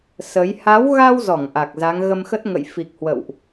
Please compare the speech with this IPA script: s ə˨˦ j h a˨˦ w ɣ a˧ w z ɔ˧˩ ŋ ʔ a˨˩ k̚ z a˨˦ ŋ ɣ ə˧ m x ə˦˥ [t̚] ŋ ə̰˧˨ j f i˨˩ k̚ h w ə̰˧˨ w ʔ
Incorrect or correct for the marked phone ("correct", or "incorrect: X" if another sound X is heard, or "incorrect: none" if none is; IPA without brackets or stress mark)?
correct